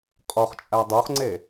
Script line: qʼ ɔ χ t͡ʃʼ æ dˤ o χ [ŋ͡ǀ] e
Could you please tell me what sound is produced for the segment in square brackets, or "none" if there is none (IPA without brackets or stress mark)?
ŋ͡ǀ